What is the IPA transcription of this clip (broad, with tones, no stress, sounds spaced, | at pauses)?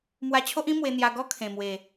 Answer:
m w a˧ t͡ɕʰ o˦ ʔ ĩ˦ m w e˧ n̪ j a˧ ɡ ɔ˦ kʰ ẽ˨˩ m w e˨˩